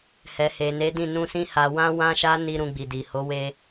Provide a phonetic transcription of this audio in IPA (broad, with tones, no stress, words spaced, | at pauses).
hɛ˨he˨ne˨˦dĩ˦˨ nũ˧sĩ˦ ha˧ wã˦ wã˦ʃa˦ ni˧ ɾũ˧ɡ͡bi˨ di˨ho˨˦we˧